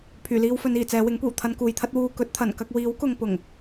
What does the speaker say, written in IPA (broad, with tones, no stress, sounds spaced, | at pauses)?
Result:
pʰ yː˨˩ l iː˧ w f ɵ˨˧ n iː˨˩ t͡s ɛː˨˧ w ɪ˨˥ ŋ kʷ iː˨˩ w t̪ʰ ɐ˧ n k uː˨ j t̪ʰ ɐ˥ t̚ w uː˨ k ɵ˨˥ t̚ t̪ʰ ɐ˨˩ n k ɐ˧ k̚ w iː˨˥ w k ʊ˨ ŋ p ʊ˨˩ ŋ